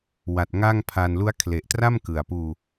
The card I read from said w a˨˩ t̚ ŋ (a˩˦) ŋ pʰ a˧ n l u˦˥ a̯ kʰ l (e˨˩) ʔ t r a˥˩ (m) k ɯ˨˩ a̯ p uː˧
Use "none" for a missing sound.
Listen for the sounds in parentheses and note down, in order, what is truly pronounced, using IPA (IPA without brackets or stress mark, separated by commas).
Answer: a˥˩, e˨˩, m